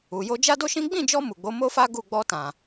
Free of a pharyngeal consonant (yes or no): yes